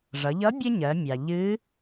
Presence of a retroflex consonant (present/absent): present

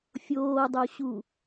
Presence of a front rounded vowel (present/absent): absent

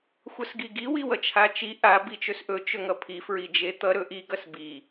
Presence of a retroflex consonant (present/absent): absent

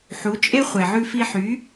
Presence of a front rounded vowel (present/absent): present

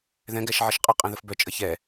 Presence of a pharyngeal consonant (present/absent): present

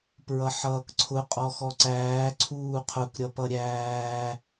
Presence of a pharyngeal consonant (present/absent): present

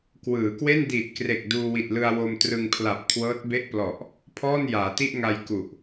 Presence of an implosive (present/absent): absent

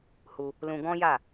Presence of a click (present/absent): absent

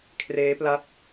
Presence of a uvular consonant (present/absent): absent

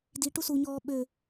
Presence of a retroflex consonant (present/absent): present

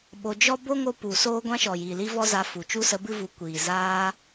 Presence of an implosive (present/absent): present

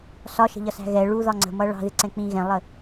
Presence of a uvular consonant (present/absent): absent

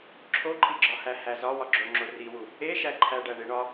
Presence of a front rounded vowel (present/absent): absent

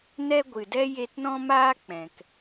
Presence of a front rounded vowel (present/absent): absent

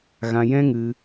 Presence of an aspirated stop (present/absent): absent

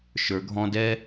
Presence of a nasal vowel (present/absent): present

